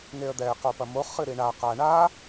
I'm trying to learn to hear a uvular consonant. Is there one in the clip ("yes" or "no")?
yes